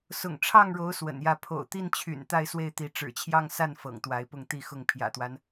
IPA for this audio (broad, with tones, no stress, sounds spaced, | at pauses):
s ʊ̰˨˩ ŋ ʈ͡ʂʰ ɑ˥˩ ŋ ɻ o˧˥ ʊ̯ s w ə̰˨˩ n j ä˥˩ pʰ o̰˨˩ ʊ̯ t̪ i˥˩ n t͡ɕʰ y̰˨˩ n t̪ a˥˧ ɪ̯ s w e˥˩ ɪ̯ t̪ i˧˥ ʈ͡ʂ ɻ̩˨˩ t͡ɕʰ j ɑ˥˧ ŋ s a˥˩ n f ɤ̰˨˩ ŋ t̪ w a˧˥ ɪ̯ p ʊ˥˧ ŋ t̪ i˥˧ x ʊ˥˩ ŋ pʰ j ä̰˨˩ t̪ w a˦ n